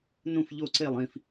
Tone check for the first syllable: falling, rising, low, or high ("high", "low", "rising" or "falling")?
falling